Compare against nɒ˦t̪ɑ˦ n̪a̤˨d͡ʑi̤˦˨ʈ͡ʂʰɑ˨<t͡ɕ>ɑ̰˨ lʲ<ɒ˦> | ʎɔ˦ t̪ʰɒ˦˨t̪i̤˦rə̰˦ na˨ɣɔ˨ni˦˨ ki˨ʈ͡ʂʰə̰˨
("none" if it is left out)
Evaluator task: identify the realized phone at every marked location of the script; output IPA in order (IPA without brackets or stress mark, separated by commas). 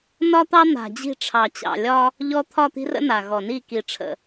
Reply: t͡ɕ, ɒ˦